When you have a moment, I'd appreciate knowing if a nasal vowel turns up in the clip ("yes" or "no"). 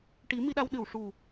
no